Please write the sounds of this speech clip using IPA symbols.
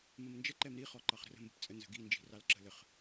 məmnd͡ʒə ǃɛmɾi χɔǃɑχɾə̤rə̤ mbə̤pt͡sʼə nzə̤ɡi nd͡ʒi̤rɑlǁə̤ləχ

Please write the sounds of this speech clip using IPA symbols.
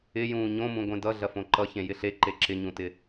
ɪjũː ɲõmũ ɡʷẽdʌ ɮɐfõǃʌ çẽjɪɬe ǃeǁɪɲũtɪ

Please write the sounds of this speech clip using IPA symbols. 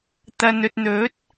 t̪ɐ˨nɵ˨t̚n̪ɵ˨˥t̚

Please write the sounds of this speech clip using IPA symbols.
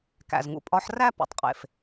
kæ̰˩zŋṵ˩pʼɒ˨˦ħræ˥˧ pṵ˩tˤqʼḛ˩f

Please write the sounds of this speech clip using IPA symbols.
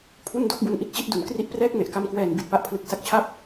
pʰu˥˩ndo˥˩k̚bu˧n ʔi˥˩t̚t͡ɕi˥˩t̚du˩˦nkri˥˩ʔ prɛː˥˩k̚me˨˩ʔka˧mkwɛː˨˩n bi˨˩t̚pa˦˥ʔpʰlɯ˨˩k̚ sa˦˥k̚t͡ɕʰa˥˩p̚

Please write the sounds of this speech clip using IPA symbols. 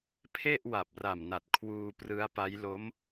pʰe˥˩ʔ wa˨˩p̚ra˨˩mna˨˩t̚ kʰwuː˧prɯ˦˥a̯ pa˦˥jlo˦˥m

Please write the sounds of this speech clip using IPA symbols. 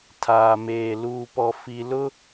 tʰaː˨meː˨ luː˨pɔ˨ fi˨ lʊ˦

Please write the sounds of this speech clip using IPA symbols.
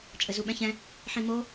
t͡ʃʼɘzuɓɛ̃çɛ̃ | ħĩmo

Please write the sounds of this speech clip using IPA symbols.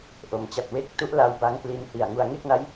ʔo˩˦mt͡ɕa˨˩t̚we˦˥k̚ tu˦˥ʔla˧w ba˦˥ŋ pli˧nhi˨˩a̯ŋu˧a̯ ŋe˥˩k̚na˦˥j

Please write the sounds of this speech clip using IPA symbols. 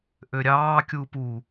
ʔøɾʲɑː kʲupu

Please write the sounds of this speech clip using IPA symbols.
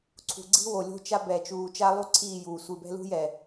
ǀʰṳ˨ɡ͡ǀi̤˦ wo˨lʲo̤˦t͡ʃa˦ bɛ˨t͡ʃuː˨ t͡ʃa˦lˠu˦ ǀʰiː˦˨juː˨ sʷi˨bɛ̤˦lṳ˦jɛ˨

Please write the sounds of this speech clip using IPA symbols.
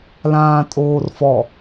lãːtʼoːrfɔ

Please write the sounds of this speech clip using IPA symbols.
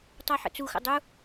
tˤaħə̰t͡suxə̰ dˤu

